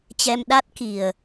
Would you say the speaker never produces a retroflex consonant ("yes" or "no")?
yes